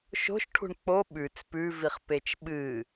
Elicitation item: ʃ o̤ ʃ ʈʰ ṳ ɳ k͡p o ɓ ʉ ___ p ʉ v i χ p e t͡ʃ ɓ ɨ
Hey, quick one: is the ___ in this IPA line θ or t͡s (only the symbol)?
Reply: t͡s